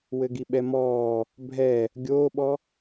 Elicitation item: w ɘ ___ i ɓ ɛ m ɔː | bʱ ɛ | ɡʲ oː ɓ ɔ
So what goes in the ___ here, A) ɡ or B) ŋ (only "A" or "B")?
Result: A